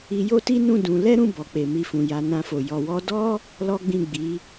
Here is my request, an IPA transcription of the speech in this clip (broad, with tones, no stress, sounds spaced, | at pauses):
i˧ j o˦ t i˦ n ũ˦˨ d ũ˧ l ɛ˦ ɾ ũ˦˨ b ɔ˨ k͡p e˨ m i˧ f ũ˨ j a˨˦ n ã˧ f o˨ j ɔ˨ w ɔ˧ d ɔ˦ | l ɔ˦ ɡ͡b ĩ˦˨ ɡ͡b i˨˦